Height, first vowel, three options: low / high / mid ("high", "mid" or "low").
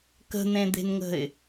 mid